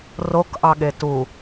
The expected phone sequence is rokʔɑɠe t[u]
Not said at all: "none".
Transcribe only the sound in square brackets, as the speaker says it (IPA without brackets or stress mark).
u